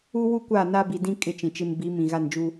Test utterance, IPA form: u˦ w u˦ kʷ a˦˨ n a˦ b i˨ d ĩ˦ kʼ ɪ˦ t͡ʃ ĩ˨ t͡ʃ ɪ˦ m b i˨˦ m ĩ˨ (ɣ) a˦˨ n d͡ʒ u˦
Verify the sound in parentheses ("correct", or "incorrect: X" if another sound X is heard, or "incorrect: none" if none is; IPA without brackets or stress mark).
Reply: correct